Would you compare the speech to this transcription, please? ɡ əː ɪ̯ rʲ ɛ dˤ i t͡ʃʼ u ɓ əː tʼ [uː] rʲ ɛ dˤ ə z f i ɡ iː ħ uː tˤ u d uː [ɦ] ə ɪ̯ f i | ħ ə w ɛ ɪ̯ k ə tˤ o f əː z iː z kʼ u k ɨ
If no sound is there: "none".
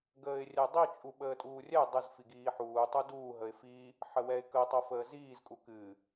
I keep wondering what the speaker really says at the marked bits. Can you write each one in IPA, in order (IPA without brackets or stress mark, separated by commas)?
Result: uː, ɦ